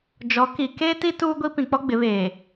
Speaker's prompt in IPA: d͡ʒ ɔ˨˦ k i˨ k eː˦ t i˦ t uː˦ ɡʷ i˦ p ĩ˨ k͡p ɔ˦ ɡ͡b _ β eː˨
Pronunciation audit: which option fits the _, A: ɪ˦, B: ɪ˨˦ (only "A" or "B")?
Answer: B